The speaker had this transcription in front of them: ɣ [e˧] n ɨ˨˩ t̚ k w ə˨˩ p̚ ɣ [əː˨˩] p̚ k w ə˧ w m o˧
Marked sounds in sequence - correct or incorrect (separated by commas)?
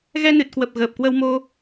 incorrect, correct